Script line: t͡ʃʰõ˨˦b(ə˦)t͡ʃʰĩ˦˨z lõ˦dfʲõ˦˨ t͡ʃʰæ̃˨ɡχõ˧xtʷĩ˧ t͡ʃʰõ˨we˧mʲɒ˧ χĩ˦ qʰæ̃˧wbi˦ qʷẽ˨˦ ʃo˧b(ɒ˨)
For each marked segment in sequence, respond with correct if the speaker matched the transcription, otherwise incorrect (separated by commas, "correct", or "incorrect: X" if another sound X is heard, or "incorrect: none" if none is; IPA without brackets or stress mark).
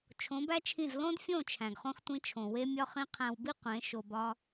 incorrect: æ˦, incorrect: ɒ˦